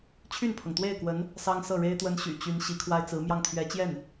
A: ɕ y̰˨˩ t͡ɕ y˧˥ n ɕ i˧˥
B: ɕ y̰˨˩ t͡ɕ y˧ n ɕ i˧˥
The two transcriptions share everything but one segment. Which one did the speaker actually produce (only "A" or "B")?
A